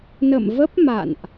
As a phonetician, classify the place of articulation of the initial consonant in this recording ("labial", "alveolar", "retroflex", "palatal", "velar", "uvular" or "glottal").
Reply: alveolar